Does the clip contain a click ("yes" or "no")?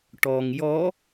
no